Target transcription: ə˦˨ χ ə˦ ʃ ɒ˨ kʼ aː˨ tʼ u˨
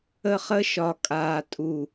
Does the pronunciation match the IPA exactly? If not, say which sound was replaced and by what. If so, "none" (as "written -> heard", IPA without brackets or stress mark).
none